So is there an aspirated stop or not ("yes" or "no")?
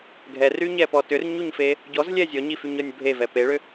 no